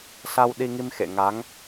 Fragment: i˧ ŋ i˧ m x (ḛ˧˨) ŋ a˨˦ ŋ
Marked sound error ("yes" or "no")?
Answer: no